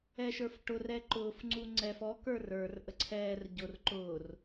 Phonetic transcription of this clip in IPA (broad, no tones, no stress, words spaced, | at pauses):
ɛʃə˞fʈʊr ɛǃʊːf ŋ͡ǀuŋ͡ǀɛf ɔ kə˞rə˞r ʔəǀʰɛːr ɟʊr ǃʊːr